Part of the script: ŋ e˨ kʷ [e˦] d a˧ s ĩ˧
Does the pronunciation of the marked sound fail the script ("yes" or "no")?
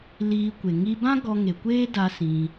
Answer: yes